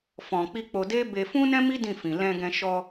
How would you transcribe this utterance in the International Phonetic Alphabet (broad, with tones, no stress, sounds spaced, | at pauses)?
f ɔ̃˨ k͡p i˧ k͡p o˧ d e˦ b e˧ f ũ˦ n ɛ̃˦ m i˦ d ĩ˦˨ f ĩ˨ l ɛ̃˧ ɡ ɛ̃˧ ʃ ɔ˧